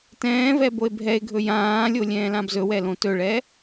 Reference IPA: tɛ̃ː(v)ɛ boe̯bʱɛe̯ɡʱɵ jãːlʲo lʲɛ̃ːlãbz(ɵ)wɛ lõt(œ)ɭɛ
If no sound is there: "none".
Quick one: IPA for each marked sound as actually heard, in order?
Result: v, ɵ, ɵ

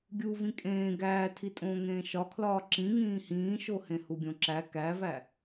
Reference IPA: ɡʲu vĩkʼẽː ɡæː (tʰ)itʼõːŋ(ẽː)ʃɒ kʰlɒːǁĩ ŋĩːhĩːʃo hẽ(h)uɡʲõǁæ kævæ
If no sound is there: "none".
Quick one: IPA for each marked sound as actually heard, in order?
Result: tʰ, ẽː, h

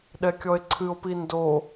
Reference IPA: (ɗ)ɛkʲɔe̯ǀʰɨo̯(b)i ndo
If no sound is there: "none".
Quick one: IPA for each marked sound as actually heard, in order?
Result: ɗ, p

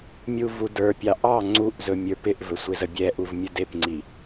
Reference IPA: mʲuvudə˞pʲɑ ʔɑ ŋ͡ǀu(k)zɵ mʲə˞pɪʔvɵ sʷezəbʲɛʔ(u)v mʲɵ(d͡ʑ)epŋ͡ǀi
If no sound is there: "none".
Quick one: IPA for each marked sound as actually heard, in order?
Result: ʔ, u, d

